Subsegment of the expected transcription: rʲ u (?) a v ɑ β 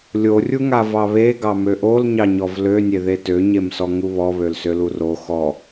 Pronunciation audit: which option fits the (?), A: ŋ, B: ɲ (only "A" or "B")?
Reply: A